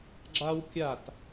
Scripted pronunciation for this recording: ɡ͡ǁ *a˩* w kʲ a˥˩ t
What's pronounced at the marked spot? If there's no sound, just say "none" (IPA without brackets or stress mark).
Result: a˥